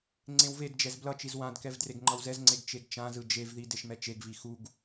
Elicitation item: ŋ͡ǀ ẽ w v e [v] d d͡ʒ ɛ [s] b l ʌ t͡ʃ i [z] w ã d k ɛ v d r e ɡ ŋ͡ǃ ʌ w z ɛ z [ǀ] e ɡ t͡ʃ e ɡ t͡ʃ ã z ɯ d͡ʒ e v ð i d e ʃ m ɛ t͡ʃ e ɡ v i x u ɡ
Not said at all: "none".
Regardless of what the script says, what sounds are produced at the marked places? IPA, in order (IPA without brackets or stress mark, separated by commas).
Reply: none, z, z, ŋ͡ǀ